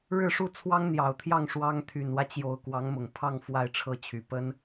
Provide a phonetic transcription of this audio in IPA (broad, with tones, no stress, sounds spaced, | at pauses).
ɻ ɻ̩˥˧ ʂ u˥˩ t͡sʰ w ɑ˥ ŋ n̪ j ɑ˨˩ ʊ̯ t̪ʰ j ɑ˥˩ ŋ ʂ w ɑ˥ ŋ t̪ʰ y˨˩ n w ä˦ t͡ɕ j o˨˩ ʊ̯ k w ɑ˧˥ ŋ m ʊ˨˩ ŋ pʰ ɑ˥˧ ŋ f w a˥˧ ɪ̯ ʈ͡ʂʰ ɤ˥˩ t͡ɕʰ y˨˩ p ə˥ n